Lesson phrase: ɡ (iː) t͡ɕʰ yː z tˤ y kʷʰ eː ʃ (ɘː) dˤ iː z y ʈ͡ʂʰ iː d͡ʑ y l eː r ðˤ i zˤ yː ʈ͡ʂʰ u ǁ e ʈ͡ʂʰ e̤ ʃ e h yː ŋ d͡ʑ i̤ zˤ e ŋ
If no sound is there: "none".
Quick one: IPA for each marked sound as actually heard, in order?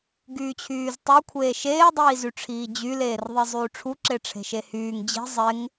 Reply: yː, eː

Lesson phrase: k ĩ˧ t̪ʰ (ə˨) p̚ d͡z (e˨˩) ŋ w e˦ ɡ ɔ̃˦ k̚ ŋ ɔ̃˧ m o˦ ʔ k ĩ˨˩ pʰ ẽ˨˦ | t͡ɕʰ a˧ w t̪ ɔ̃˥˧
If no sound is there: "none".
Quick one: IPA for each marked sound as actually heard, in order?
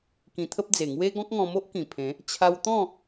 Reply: ə˦, e˨˩

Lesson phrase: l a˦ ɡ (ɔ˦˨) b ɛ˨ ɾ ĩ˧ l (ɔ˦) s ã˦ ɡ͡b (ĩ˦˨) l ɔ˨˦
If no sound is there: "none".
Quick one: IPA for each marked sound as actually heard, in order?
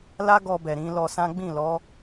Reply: ɔ˧, ɔ˧, ĩ˦˨

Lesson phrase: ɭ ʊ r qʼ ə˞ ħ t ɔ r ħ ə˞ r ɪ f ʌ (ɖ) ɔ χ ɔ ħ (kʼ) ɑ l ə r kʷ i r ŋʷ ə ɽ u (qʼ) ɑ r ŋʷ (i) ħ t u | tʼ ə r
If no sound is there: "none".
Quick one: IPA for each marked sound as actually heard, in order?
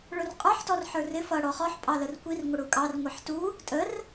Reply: ɽ, pʼ, kʼ, i

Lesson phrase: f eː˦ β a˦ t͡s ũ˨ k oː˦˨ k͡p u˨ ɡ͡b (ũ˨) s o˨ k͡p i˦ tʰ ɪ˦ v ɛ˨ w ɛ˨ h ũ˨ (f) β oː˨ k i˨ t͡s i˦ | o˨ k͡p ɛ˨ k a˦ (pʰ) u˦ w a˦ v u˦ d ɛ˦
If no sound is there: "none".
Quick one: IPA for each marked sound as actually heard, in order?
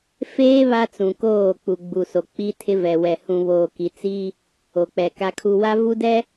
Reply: u˨, none, kʰ

